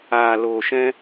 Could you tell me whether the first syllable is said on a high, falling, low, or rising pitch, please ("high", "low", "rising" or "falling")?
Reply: low